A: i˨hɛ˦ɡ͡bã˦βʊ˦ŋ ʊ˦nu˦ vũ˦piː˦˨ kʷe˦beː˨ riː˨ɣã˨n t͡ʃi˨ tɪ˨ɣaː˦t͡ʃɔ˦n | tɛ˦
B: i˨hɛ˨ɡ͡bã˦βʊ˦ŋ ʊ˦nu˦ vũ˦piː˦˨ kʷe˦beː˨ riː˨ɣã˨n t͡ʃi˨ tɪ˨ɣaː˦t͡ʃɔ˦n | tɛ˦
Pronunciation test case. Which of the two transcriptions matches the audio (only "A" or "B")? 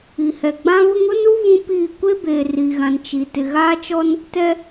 B